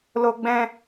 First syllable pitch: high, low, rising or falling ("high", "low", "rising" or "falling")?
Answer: high